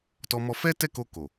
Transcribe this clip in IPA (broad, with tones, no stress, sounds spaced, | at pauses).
t ɔ˧ m ɔ˧ f ɛ˦ t ɛ˦˨ k o˧ k o˨